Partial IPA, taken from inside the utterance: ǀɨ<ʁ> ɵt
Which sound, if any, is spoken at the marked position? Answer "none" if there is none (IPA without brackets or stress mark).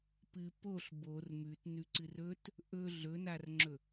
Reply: r